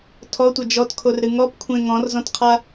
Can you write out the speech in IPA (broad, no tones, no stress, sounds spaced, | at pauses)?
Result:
tʰ ɔ tʷ ɐ d͡ʒ ɔ t kʰ o r ɾ ɨ ŋ ɔ p kʷʰ ẽ ŋ ɔ̃ r z ɔ̃ t qʰ a